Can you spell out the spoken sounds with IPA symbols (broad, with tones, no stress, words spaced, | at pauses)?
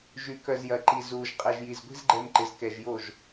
ʒy˨ kœ˨zjɐ˨ǃi˨ zuː˨ʒ qʼɛ˨ʒji˨z ɡʷi̤˦zɡ͡ǃɛ˧mǃɪ˨z kɛ˨ʒ jo˦˨ʒ